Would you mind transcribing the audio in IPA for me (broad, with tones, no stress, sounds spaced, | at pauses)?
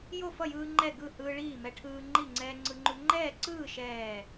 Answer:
j o˥˨ f ʌ˥˨ j ɯː˦ ŋ͡ǃ ɛ˥˨ ɡ ɯ˥˨ h ɯː˦ ɭ iː˥˨ m ɛ˦ ʈʰ ɯː˦ ŋ͡ǃ i˥˨ ŋ͡ǀ ɛː˦ ŋ͡ǀ ɯ˦ ŋ͡ǃ u˦ ŋ͡ǃ ɛː˥˨ ǀ ɯː˥˨ ʃ ɛː˥˨